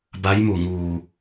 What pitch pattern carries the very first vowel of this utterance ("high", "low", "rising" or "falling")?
rising